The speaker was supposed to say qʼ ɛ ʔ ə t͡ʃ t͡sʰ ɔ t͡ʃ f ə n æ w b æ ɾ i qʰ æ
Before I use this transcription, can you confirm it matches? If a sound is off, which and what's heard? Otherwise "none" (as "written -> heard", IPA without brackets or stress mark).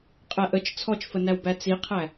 ɾ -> t͡s